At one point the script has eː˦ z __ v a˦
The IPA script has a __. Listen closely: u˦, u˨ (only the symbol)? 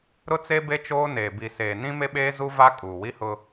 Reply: u˦